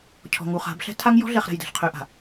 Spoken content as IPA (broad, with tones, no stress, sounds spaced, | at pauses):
cʰ ɔ̤˨ ŋ u˨ χ a̤˨˦ b ɬ ɛ̤˦ tʰ a˦ ŋ j ɔ̤˦ ɮ ɛ˨ χ ɾ ɛ̤˨ j d ɛ̤˨ ɬ qʰ ø˨ ʔ a̤˨